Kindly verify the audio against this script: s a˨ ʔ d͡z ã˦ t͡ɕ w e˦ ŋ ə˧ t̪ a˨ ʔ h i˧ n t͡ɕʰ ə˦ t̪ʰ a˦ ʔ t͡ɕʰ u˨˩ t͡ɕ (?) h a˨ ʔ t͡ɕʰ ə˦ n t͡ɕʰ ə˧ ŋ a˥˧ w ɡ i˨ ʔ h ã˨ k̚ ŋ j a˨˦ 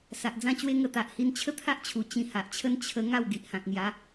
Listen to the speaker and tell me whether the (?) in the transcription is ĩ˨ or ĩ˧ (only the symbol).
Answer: ĩ˧